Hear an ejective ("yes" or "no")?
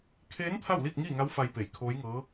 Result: no